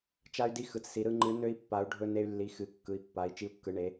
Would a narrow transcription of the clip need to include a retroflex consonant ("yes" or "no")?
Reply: yes